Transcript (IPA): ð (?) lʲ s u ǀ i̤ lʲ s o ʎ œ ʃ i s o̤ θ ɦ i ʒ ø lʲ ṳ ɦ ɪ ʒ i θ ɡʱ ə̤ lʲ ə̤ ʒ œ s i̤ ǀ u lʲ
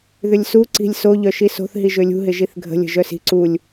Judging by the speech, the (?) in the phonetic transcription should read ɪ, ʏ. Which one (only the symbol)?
ʏ